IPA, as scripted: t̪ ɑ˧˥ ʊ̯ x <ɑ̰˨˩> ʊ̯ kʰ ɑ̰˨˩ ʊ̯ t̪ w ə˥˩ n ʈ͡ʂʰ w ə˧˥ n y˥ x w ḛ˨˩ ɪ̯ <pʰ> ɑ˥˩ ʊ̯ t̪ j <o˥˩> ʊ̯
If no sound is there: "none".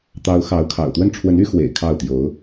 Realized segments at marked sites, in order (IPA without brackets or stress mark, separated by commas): ɑ˧˥, kʰ, o˧˥